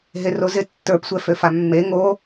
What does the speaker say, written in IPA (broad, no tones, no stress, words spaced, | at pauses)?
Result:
ɦerozɪ tːə˞psʷɛ føfamːe ŋo